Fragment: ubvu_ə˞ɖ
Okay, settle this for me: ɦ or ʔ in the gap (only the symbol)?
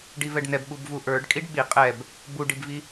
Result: ʔ